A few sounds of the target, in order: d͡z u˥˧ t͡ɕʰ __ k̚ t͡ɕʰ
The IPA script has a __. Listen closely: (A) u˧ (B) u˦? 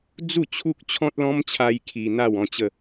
B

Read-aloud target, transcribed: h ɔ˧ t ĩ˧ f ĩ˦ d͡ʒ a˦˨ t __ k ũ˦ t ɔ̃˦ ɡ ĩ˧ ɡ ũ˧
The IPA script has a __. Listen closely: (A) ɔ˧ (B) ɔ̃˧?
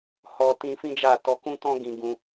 A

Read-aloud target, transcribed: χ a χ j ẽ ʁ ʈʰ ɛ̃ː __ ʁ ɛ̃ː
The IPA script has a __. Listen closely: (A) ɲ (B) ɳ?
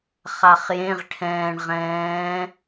B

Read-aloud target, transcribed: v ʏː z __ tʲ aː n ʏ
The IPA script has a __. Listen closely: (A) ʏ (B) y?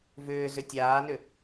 A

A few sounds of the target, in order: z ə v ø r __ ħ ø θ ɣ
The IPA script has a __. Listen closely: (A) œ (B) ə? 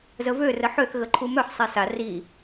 B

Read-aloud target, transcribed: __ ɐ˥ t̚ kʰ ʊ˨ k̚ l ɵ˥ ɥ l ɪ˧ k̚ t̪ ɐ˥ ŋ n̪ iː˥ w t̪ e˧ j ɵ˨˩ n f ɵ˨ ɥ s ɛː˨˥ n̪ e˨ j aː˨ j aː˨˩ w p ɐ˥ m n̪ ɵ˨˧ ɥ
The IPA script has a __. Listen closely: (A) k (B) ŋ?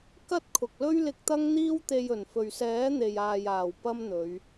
A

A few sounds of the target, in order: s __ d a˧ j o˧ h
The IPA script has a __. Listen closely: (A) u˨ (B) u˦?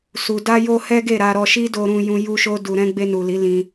A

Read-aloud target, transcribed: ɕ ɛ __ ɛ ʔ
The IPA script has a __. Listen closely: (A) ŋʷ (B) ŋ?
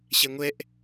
A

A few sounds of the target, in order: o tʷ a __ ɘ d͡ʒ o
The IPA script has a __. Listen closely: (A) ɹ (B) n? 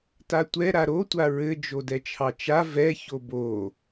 A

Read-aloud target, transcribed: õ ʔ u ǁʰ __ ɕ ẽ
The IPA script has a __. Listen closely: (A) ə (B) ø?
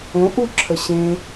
A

